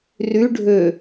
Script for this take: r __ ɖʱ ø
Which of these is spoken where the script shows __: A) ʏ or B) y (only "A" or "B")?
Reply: B